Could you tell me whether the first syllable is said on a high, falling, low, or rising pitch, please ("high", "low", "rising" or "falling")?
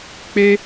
high